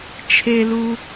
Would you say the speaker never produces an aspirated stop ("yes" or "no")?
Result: no